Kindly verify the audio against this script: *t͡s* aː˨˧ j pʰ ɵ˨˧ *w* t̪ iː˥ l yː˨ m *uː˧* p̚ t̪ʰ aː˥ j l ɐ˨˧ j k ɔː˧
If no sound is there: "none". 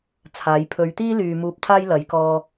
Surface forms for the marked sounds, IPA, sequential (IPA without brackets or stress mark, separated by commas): t͡sʰ, ɥ, uː˧